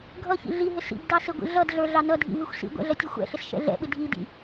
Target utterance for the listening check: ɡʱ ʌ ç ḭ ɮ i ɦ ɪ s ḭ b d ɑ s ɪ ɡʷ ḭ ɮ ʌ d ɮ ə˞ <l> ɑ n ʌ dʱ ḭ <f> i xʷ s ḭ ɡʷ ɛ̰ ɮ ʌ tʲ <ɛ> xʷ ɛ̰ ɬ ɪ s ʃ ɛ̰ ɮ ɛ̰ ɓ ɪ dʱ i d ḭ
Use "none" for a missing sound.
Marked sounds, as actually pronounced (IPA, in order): ɮ, v, ɛ

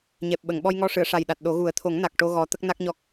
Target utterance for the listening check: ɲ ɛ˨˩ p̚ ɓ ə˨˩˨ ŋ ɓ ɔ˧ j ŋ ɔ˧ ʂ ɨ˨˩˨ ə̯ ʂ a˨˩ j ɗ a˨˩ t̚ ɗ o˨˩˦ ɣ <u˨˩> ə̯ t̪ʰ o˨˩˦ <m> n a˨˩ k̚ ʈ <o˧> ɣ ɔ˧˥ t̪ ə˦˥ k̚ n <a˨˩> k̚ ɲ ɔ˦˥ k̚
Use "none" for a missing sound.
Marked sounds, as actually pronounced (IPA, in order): u˨˩˦, ŋ, o˧, a˦˥

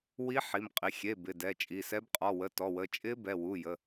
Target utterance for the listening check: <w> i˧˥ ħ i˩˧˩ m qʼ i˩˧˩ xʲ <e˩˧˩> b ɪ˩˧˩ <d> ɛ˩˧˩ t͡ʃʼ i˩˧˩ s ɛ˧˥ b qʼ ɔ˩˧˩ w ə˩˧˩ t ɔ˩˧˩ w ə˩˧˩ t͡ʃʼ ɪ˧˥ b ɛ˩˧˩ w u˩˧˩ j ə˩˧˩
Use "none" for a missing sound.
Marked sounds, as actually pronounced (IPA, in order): w, e˩˧˩, d

